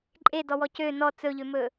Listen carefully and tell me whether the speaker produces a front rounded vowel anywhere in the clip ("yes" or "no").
yes